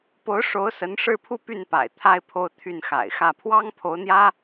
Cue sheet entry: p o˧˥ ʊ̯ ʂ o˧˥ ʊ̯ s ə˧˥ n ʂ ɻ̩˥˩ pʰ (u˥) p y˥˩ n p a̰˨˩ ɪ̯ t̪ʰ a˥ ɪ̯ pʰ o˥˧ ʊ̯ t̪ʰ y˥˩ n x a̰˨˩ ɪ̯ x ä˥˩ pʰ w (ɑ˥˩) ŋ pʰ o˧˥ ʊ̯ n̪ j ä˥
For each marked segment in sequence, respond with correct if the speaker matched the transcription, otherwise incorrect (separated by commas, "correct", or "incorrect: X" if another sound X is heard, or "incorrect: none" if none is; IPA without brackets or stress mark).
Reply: correct, incorrect: ɑ˥